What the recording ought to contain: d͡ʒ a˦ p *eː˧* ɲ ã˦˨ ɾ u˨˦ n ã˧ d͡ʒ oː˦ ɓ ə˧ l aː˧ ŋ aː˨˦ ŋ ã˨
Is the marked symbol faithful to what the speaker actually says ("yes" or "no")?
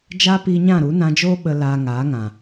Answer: no